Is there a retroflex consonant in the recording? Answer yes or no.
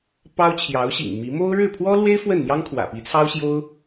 yes